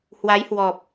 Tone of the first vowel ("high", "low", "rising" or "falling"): rising